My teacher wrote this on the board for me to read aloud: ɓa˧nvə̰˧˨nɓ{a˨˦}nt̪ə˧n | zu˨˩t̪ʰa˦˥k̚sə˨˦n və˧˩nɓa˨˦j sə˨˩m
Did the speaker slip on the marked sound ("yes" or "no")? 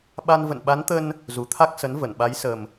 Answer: no